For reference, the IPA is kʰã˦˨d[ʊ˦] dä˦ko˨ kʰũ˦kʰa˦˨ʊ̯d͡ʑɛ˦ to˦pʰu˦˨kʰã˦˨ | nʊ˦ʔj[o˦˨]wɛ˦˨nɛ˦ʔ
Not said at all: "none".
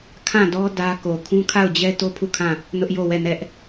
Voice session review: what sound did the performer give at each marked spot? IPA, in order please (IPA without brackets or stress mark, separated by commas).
ɔ˦, o˦˨